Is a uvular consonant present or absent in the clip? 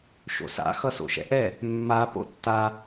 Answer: absent